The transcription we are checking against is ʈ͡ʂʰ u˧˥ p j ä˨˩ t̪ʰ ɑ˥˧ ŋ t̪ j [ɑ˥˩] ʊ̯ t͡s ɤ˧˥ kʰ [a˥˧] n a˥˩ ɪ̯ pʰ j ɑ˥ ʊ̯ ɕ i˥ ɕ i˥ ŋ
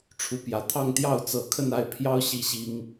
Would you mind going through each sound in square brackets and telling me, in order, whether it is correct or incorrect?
correct, incorrect: ə˥˧

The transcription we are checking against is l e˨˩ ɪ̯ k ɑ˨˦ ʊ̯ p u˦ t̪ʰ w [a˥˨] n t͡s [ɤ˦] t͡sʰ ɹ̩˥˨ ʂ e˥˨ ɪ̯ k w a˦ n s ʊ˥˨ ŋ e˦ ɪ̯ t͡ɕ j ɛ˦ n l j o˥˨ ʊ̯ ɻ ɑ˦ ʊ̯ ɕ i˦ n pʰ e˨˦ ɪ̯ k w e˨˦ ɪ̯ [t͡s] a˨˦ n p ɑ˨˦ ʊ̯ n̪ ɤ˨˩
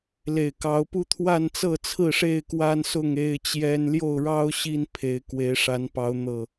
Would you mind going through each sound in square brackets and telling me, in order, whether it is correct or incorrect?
correct, incorrect: ɤ˥˨, incorrect: ʂ

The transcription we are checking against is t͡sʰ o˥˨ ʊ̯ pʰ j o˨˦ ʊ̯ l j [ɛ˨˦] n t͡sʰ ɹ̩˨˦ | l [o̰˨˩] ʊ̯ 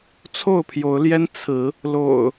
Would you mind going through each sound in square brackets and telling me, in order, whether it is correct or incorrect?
incorrect: ɛ˦, correct

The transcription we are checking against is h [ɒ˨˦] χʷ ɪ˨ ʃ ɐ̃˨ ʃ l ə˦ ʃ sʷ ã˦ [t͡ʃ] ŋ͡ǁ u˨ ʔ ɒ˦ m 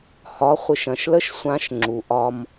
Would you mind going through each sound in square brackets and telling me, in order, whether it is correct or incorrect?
correct, incorrect: ʃ

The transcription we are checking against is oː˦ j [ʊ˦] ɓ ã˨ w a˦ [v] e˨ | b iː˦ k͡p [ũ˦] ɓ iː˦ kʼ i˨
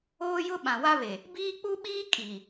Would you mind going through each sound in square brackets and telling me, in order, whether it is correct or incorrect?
correct, incorrect: β, incorrect: u˦

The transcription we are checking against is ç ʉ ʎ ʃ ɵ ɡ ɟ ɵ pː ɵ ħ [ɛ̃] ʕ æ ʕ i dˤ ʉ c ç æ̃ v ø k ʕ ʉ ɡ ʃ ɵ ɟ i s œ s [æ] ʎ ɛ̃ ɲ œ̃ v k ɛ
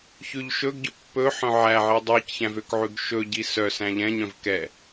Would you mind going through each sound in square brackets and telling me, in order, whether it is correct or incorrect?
incorrect: œ̃, incorrect: æ̃

